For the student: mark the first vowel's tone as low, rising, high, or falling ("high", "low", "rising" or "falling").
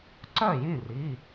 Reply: falling